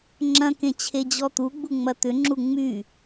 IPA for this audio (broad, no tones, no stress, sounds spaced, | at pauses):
ŋ͡ǁ ɐ̃ k ẽ t͡ɕʰ e d͡ʑ ɔ t̪ u ɡ͡b u ŋ͡m ɐ t̪ ʏ ŋ͡ǁ u ŋ͡m y